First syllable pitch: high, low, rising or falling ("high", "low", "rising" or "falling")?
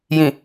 low